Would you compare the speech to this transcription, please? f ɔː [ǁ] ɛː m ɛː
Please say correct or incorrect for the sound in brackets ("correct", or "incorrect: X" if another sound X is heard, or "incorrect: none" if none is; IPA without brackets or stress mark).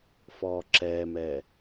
correct